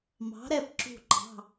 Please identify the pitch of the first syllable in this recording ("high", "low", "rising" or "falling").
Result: rising